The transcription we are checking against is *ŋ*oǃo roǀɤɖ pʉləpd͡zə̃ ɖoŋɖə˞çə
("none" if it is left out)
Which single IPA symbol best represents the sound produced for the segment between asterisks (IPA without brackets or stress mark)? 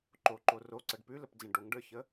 ǃ